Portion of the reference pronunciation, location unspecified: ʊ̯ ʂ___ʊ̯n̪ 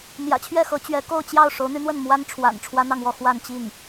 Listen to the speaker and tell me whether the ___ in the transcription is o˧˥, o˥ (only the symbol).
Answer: o˧˥